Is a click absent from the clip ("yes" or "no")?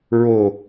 yes